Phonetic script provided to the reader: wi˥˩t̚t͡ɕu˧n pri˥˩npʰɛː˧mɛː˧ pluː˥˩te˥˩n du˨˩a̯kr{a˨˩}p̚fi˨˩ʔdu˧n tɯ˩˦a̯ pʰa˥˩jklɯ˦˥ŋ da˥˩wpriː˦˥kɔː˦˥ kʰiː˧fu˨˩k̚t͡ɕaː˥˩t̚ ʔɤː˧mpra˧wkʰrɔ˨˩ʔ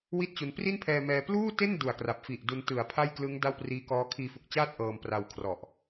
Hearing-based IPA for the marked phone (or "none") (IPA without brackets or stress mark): a˨˩